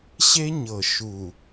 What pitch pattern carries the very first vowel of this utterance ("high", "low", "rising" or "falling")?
high